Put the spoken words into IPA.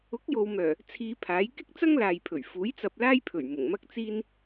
ʊ˨˥ k̚ j o˨ w m œː˨˩ | t͡sʰ iː˧ pʰ aː˨˥ j k ɪ˥ k̚ t͡s ɐ˥ ŋ l aː˨ j pʰ ɵ˨˩ ɥ f uː˨˥ j t͡s ɐ˧ p̚ l aː˥ j pʰ ɵ˨˩ ɥ m ʊ˨˩ ŋ m ɐ˥ k̚ t͡s iː˥ n

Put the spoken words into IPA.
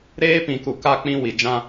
ɾ eː˦ p ĩ˨ k u˨ k a˦ k͡p ĩ˦ w i˨ d͡ʒ ã˦

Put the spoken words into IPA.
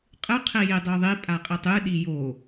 qʼ ɨ qʰ i j i dˤ o ðˤ i pʼ a qʼ i tˤ ɨ ɗ i j o

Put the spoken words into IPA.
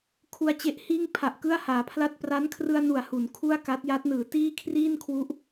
kʰ u˧ a̯ t͡ɕ e˦˥ ʔ h iː˥˩ ŋ pʰ a˨˩ ʔ k ɯ˥˩ a̯ h aː˩˦ pʰ l a˥˩ t̚ p r a˦˥ n kʰ r ɯ˧ a̯ n u˩˦ a̯ h u˩˦ n kʰ u˥˩ a̯ k a˦˥ t̚ j a˦˥ t̚ n ɯː˩˦ t iː˥˩ kʰ r iː˥˩ n kʰ w u˦˥ ʔ

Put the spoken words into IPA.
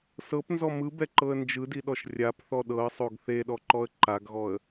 s ɤ p n z ɔ m ɯ b ɛ ǃ ɤ ə̯ n d͡ʒ ɯ d i ɗ ɔ ʃ rʲ a p θ ɔ ɗ ɤ ə̯ sˤ o ɡ θ e ɗ ɔ ǃ ɔ ə̯ ǃ a ɡ ɣ ɔ ə̯

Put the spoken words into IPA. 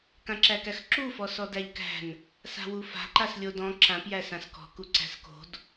k ã ǁ æ k æ x ǁ u f ɔ s ɔ d æ ʎ k æ̤ n | s a̤ w u f a̤ ǃ a s lʲ o d ɔ̃ ǁ ã p j æ s ã s k ɔ̤ k u ǀ æ̤ s k o̤ d

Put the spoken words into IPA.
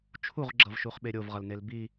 t͡ʃʰ u ʁ ɡ͡ǁ ʌ v ʃ u χ ɓ e ɾʲ o v ʁ ʌ l n e l b i

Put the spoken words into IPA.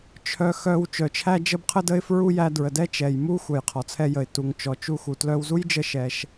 t͡ʃʰ œ˧ x œ˧ w t͡ʃ œ˩ t͡ʃʰ æ˧ d͡ʒ ə˧ b qʰ ə˧ d ə˥ ɪ̯ f ɹ u˥ j æ˧ d ɹ ə˩ d ɛ˥ t͡ʃ ɛ˩ j m u˥ xʷ œ˩ j qʰ ɔ˩ t͡sʰ ɛ˧ j ə˩ ɪ̯ t u˩ ŋ t͡ʃ ɔ˩ t͡ʃ u˧ x u˩ t l œ˧ w z u˥ j d͡ʒ ə˧ ʃ ɛ˩ ʃ

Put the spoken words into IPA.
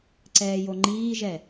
ǀ ɛː j o ŋ͡ǃ iː ʒ ɛ

